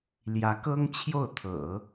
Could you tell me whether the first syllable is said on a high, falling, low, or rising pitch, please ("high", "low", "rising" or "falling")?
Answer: rising